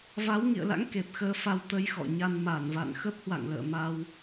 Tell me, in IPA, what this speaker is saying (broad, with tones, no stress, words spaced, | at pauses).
va˨˦w ŋḭ˧˨ə̯la̰˧˥ŋ ke˨˩p̚xəː˧fa˧w t̪ə˧jxɔ̰˧˨ɲa˧n ma˧˩nva̰˧˨n xə˦˥p̚hwa̰˧˨ŋlə̰ː˧˨ ma˧w